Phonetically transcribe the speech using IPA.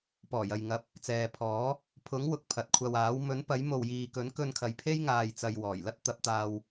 p ɔː˨˩ j ɐ˨ j ŋ ɐ˨˥ p̚ | t͡s ɛː˨ pʰ ɔː˨˥ | pʰ ʊ˨˥ ŋ w ʊ˨ k̚ pʰ ɐ˨ t̚ kʷʰ ɐ˧ w aː˨˥ w m ɵ˨˥ n p ɐ˨˥ j m o˨ w j iː˨ k ɵ˨˥ n k ɵ˧ n kʰ ɐ˨ j pʰ e˥ j ŋ aː˨ j t͡s ɐ˨ j w ɔː˨˩ j l ɐ˥ t̚ t̪ ɐ˨˥ p̚ t̪ aː˧ w

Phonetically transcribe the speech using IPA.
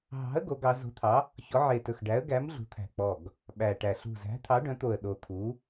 ɦ ɑ̤˨˥ ə̯ ɡ o˨˥ ɡ ɑ˨˥ z o̤˨˥ t̪ʰ ɑ˨˥ | ç ɔ˨˥ ʕ e˧˩ t ɵ˧˩ x ɖ æ˨˥ ə̯ ɡ æ˨˥ m ɮ ṳ˨˥ t̪ʰ æ̤˧˩ k͡p ɔ˧˩ ɡ | ɓ æ˧˩ ʈ æ˧˩ ɬ ṳ˧˩ z æ̤˨˥ t̪ʰ ɑ˨˥ ɖ œ̃˨˥ t̪ o˧˩ ə̯ ɗ o˧˩ t̪ʰ u˨˥

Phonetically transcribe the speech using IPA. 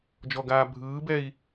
d͡ʒ ɔ ɡ aː bʱ ɯː b ɛ i̯

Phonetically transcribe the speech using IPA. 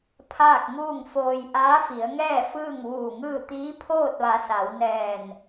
pʰ aː˥˨ k̚ ŋ uː˥˨ ŋ f oː˧ j ʔ aː˧˥ f i˩˧ ə̯ ŋ ɛː˥˨ f ɯː˥˨ ŋ ʋ uː˧˩ ŋ ɯː˥˨ t̪ iː˧˥ pʰ oː˥˨ t̚ ʋ a˩˧ s a˩˧ w n ɛː˧˩ n

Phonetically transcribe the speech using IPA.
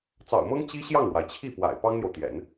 t͡s ɑ̰˨˩ ʊ̯ m ɤ˥ ŋ t͡ɕ i˥ ɕ j ɑ˥˩ ŋ ɻ w a˩ ɪ̯ t͡ɕʰ i˥˩ p w a̰˨˩ ɪ̯ p ɑ˥ ŋ n̪ j o˨ ʊ̯ t̪ j ɛ̰˨˩˦ n

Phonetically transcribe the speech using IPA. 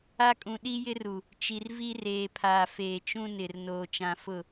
a˦ kʼ ũ˨ ɗ i˦ j ɪ˦ r u˨ | t͡ʃ i˨ r v i˦ r eː˨ pʰ aː˨ f eː˨ t͡ʃ ũ˦ n ɪ˨ r n oː˨ t͡ʃ ã˨ f ʊ˦˨

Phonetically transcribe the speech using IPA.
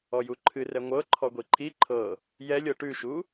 ɔ j u ǃʰ ɨ r ɛ ŋʷ ɤ ǃʰ ɔ ɡʷ i ǃʰ i ǃʰ ɤ | j ɛ lʲ ɤ ʈ ʉ ʃ u

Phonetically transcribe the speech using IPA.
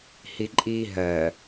h i ǃʼ iː ɦ ɜ

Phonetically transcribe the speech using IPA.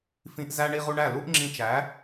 f ĩ˧ ʔ z æ˧ ɳ i˧ ʁ u˧ ɳ æ˦˨ l u˦ ʔ ŋ͡ǁ ĩ˧ t͡ʃ æ˨˦

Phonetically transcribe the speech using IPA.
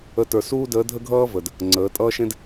ə˧˥ t ə˞˧ s uː˥ d əː˧˥ dʱ ə˥ ɡʱ ʌː˥ v ə˩ d | ŋ͡ǀ əː˩˧ tʼ ʌː˥ ʃ ẽ˥ d

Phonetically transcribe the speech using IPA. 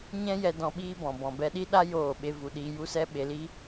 ɲ ɛ̃˦ j ɛ˧ d ɔ̃˧ ɓ iː˦ b ɔ̃˨ b ɔ̃˨ b ɛ˧ ɗ i˦ ɗ a˦ j oː˦˨ ɓ e˦ v u˧ ɗ iː˧ j u˦ s ɛ˦ ɓ e˧ l i˦

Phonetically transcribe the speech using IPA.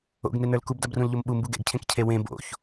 o̰ ɡ n e n ə˞ l k u b d a b r ũ l ʎ o m ɓ u m b u ɡ ɛ̰ ɡ cʰ ẽ k cʰ e w ẽ b o̰ ç

